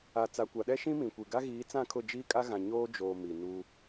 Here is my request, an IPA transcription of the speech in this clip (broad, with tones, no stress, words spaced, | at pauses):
a˨ t͡sa˨kʷa˨ɗɛ˦ʃĩ˦ mĩ˨kʷi˨ ɡa˦ɣiː˨˦t͡sã˦˨kʰʊ˦˨ d͡ʒiː˦kʼa˦ɣã˨ ɲoː˦d͡ʒoː˨ mi˨nu˦